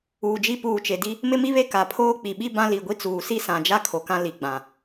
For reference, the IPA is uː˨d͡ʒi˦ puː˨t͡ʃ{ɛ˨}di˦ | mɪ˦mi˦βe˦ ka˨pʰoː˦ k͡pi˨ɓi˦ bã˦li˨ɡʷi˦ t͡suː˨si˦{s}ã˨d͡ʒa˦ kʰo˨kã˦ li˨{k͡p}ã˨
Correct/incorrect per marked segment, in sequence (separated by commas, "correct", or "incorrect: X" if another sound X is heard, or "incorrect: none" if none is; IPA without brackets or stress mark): incorrect: e˨, correct, incorrect: ɡ͡b